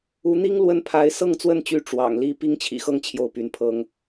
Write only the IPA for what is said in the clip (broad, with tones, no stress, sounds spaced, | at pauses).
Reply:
u˧˥ n̪ i˥ ŋ l w ə˥˩ n pʰ a˧˥ ɪ̯ s ɤ˥˧ ŋ t͡s w ə˥˩ n t͡ɕ y˧˥ ʈ͡ʂ w ɑ̰˨˩ ŋ l i˥ p i˥ ŋ t͡ɕʰ ḭ˨˩ x ɤ˥˧ ŋ t͡ɕʰ j o˥˩ ʊ̯ p y˧˥ n pʰ ɤ˥ ŋ